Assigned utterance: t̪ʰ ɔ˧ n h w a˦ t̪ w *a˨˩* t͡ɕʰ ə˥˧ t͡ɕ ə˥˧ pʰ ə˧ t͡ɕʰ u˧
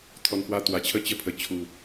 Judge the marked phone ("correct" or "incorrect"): incorrect